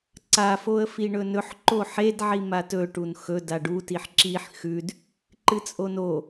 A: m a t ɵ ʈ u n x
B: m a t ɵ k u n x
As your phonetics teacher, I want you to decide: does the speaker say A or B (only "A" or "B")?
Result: A